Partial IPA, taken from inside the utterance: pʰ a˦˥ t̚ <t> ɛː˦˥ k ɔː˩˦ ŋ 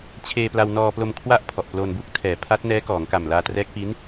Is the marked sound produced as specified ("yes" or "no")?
no